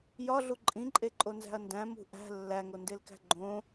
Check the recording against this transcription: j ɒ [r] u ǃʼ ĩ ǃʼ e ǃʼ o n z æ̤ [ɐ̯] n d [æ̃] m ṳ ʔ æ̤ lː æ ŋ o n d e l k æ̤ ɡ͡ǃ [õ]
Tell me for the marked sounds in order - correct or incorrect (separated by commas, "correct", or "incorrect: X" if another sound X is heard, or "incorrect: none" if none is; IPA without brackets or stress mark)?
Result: incorrect: ɮ, correct, correct, correct